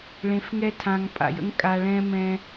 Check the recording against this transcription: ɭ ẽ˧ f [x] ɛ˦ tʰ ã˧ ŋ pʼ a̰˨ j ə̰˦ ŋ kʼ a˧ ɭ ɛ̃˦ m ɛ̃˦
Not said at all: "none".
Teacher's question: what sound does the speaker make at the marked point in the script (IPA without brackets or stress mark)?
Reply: ŋ